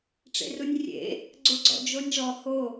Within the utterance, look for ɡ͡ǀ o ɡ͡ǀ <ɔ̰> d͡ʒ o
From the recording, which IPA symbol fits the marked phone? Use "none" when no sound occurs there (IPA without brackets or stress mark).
ɔ̰